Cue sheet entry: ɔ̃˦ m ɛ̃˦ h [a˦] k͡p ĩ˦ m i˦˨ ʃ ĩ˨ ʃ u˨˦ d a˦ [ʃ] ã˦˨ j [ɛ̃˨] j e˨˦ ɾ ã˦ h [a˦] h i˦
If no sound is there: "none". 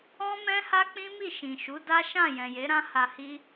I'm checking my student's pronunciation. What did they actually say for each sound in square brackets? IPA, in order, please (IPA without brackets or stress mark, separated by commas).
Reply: a˦, ʃ, ɛ̃˨, a˧